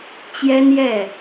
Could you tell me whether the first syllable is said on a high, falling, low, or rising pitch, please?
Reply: high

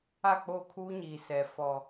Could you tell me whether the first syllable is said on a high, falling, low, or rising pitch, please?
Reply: falling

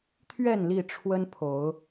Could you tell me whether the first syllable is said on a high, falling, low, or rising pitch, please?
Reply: falling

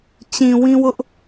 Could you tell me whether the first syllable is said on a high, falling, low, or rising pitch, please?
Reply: low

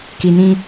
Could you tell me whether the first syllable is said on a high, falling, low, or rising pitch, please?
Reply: low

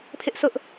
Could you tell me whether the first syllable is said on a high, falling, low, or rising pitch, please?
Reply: high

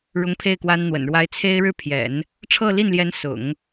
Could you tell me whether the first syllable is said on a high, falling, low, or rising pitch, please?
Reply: high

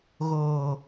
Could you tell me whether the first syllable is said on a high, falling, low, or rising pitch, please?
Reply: low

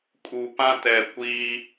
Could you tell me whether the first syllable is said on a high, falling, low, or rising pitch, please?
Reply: low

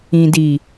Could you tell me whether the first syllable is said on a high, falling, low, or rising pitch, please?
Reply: low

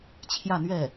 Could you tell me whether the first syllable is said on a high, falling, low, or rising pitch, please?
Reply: falling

